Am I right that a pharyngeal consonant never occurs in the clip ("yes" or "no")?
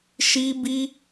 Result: yes